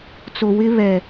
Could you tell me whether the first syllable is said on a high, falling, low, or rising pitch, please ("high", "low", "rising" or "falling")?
low